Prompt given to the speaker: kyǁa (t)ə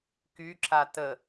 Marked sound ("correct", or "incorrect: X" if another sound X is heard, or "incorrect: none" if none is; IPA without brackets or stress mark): correct